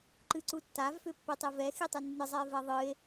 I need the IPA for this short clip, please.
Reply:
ǃ ɨ ǀ u tː a v f ʏ pː i tˤ i v ɛ x i tˤ ɨ nː ɨ zˤ ɛ e̯ v ɛ ðˤ ɨ e̯

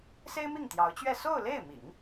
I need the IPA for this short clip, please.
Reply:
s e˥ ɪ̯ m i˥˩ ŋ t̪ j ɑ˧˥ ʊ̯ t͡ɕ ɥ ɛ˥˧ s o˥˧ ʊ̯ l e˥˩ ɪ̯ m ḭ˨˩˦ ŋ

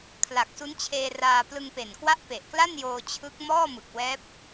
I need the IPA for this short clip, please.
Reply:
kʰ l a˨˩ k̚ s u˦˥ n t͡ɕʰ eː˧ r aː˧ p l ɯ˧ ŋ p e˨˩ n k w a˦˥ ʔ p e˨˩ ʔ k l a˥˩ n j oː˧ t͡ɕʰ ɯ˦˥ k̚ m ɔː˥˩ m ɯ˨˩ k̚ w ɛː˦˥ p̚

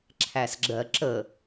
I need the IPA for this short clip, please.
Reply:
ǁʰ æ s ɡ͡ǁ ɜ ǁ ə

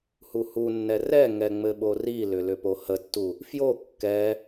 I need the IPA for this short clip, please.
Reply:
h u h u nː ɛ r ɛ ŋ ɛ ŋ͡m ɘ ɓ o r i l ʏ l ʏ p o h ə tː u | f j o kː ɛ

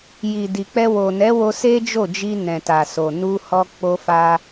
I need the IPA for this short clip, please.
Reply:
j i˨ d i˨ k͡p ɛ˧ w o˨ n ɛ˨˦ w o˧ s e˦ d͡ʒ o˦˨ d͡ʒ i˧ n ɛ̃˨ t a˨ s o˨ n u˧ h ɔ˧ k͡p o˧ f a˧

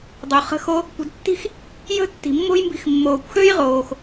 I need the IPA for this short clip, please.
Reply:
dˤ o˩ χ ə̤˧ x o˧ | kʷ ə̤˧ d tː i̤˥ x | j ə̤˥ tː i̤˩ mː o̤˥ j m b i̤˧ x mː oː˩ kʷ x ø˥ j ʁ oː˩ x

